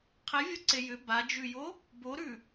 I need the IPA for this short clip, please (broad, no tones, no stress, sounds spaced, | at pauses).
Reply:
qʰ e vʲ o ǀ e j ʏ b a d͡ʒ ʉ j o | b o ɾ ʉ